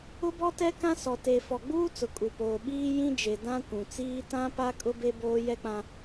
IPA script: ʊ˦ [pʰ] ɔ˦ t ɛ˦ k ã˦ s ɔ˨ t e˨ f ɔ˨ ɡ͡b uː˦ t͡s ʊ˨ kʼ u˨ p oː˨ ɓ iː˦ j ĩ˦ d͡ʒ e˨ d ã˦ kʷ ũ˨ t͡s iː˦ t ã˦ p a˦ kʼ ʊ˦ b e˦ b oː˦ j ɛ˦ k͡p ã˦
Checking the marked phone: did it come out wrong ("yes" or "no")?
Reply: yes